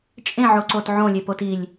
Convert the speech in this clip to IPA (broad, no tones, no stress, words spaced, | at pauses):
t͡ʃʼẽʕo ǀotʕõlʲe potilʲ